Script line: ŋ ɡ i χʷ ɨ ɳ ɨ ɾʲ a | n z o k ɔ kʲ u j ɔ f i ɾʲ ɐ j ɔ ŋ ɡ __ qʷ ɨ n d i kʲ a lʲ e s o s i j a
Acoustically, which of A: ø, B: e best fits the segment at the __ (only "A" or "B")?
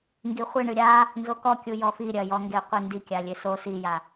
B